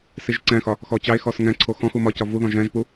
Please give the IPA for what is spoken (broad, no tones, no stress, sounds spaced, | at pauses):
s i ʒ ǀ ɛ̃ x ɒ | x ɔ t͡ɕ ɑ e̯ x ɔ s ŋ ɛ̃ ǀʰ o x ɔ̃ x u m ɒ c ɒ v u ð ɔ̃ ʒ ɛ̃ ʒ p u